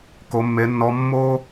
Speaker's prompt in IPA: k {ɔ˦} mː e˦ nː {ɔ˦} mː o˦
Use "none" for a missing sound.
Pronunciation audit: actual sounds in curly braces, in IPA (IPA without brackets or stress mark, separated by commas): o˦, ɔ˦